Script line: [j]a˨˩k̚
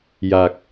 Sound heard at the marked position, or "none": j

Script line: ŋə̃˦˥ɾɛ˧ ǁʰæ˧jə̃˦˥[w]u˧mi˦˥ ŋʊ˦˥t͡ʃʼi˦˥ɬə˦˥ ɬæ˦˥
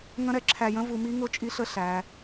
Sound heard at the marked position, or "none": v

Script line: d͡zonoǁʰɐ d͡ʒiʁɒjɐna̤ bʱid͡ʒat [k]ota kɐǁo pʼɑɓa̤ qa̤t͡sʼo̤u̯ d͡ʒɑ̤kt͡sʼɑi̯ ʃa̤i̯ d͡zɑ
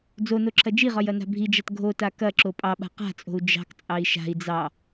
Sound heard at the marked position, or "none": ɡʱ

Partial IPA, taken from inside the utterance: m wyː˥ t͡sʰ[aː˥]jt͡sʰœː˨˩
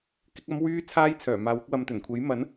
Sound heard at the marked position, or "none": aː˥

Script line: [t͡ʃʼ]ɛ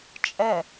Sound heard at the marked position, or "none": t͡ʃʼ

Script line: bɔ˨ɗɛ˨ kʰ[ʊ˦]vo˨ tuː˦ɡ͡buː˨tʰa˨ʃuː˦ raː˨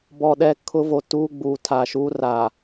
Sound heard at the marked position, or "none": ʊ˦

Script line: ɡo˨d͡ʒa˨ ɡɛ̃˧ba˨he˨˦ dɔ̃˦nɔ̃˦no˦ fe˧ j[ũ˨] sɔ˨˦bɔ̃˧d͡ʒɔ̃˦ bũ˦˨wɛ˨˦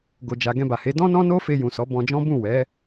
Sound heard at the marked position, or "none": ũ˨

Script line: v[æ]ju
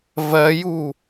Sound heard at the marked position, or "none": ɜ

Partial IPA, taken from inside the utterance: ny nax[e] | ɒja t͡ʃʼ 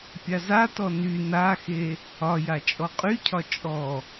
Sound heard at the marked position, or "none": e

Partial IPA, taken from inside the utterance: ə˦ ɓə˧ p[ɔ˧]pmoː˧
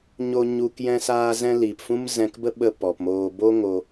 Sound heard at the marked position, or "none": ɔ˨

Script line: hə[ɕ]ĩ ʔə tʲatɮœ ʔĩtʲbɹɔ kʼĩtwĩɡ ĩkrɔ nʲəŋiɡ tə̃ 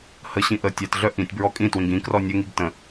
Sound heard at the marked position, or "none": ɕ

